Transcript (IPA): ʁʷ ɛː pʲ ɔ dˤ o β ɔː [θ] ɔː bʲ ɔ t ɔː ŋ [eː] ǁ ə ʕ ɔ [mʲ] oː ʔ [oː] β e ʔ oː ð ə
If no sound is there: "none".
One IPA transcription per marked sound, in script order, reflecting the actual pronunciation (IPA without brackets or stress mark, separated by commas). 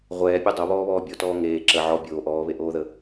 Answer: β, eː, bʲ, ɔː